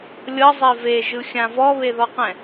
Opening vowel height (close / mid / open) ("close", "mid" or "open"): mid